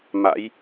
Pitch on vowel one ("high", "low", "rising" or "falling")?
rising